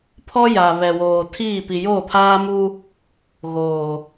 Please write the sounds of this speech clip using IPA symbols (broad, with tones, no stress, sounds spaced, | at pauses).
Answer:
pʰ ɔ˦ j a˨ β ɛ˨ w oː˨ tʰ iː˦˨ p i˨ j oː˦˨ pʰ aː˦ m u˦ | ɣ oː˨